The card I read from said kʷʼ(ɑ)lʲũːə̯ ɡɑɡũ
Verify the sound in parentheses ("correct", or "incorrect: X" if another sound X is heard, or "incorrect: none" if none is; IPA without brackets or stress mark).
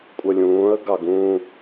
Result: incorrect: ə